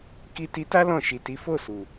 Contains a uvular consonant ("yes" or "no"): no